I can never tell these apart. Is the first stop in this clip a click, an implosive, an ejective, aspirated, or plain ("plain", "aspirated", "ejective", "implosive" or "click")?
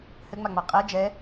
ejective